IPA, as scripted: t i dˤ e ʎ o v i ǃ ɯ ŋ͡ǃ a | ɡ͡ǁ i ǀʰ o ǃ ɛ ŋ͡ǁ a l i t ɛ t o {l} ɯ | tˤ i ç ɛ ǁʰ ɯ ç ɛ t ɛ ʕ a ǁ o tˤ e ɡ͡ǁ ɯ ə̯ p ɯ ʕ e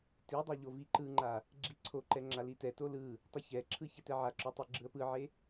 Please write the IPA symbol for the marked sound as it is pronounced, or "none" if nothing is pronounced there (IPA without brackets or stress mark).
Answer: l